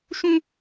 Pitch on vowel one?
high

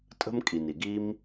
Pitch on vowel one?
high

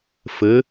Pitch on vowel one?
rising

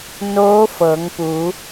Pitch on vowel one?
rising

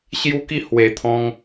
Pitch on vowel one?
high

